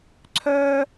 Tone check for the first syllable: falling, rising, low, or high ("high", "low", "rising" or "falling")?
high